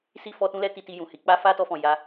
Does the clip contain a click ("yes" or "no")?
no